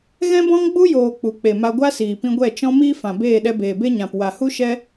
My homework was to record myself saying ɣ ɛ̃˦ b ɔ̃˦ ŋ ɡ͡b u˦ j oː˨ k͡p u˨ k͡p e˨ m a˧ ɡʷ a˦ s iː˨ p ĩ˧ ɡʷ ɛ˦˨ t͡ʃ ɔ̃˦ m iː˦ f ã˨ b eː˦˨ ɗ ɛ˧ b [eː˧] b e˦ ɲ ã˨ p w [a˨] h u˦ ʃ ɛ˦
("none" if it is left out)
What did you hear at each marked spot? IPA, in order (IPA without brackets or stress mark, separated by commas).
eː˨, a˨